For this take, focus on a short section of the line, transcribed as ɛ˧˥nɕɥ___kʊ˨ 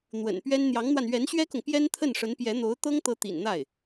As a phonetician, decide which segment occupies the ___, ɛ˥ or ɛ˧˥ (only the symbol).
ɛ˥